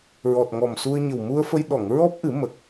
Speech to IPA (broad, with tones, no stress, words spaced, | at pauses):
ɹɔ˨˩t̚ŋɔ˨˩msu˧ə̯ɲə˨˩w mu˧ə̯fə˧j ɗɔ˨˩˨ŋɹɔ˦˥p̚ʔɨ˨˩˦ mə˨˩k̚